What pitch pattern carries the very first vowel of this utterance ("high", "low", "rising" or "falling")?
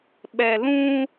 low